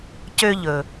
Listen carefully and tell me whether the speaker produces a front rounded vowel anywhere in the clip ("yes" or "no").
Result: yes